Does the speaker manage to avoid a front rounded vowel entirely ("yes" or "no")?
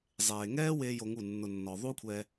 yes